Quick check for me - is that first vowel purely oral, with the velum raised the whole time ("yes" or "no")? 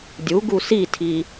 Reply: yes